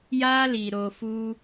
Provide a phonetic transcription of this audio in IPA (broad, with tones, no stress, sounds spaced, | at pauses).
j a˦ l i˧ ɾ o˧ f u˦